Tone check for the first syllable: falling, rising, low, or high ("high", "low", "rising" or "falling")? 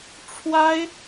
high